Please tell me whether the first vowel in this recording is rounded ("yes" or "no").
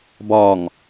yes